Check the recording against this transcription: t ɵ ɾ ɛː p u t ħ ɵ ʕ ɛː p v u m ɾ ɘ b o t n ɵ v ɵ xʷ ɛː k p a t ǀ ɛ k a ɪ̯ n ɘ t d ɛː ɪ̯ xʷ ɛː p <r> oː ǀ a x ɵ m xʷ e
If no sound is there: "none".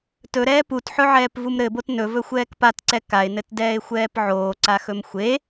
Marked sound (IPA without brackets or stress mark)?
ʕ